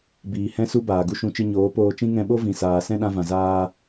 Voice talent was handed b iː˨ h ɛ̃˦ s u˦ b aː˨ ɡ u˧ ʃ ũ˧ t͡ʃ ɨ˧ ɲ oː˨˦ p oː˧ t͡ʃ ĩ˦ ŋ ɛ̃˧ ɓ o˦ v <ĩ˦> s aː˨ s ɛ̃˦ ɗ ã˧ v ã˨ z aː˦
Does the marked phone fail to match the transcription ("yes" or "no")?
yes